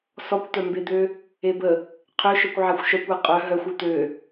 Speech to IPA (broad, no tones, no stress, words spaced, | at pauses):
sɔkʷt̪œmbed̪ø | ebə | qʰøʃœkʷ ʕaxʷʃœkʷ aqʼœ ɦœxʷ øt̪ø